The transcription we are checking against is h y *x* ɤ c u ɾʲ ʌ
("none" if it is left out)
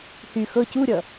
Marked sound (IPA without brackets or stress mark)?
x